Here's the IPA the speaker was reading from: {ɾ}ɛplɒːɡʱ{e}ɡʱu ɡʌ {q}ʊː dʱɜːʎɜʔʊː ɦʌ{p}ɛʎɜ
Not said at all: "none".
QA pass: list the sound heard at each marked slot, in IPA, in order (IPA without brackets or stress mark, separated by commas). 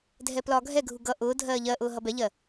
dʱ, ɛ, ʔ, b